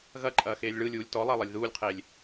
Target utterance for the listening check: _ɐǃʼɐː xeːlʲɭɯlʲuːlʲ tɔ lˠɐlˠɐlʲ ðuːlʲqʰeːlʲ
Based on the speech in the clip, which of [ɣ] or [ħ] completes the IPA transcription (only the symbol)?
ɣ